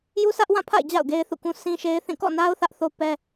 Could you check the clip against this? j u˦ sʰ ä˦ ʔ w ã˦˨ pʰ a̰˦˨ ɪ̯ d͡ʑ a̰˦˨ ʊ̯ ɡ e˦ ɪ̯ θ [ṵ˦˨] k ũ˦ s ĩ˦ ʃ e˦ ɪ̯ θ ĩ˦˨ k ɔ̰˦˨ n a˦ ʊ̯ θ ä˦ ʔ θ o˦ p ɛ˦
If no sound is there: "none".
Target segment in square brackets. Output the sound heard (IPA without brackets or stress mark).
ṵ˦˨